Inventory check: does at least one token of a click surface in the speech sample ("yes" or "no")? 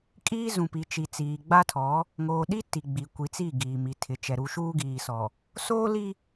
no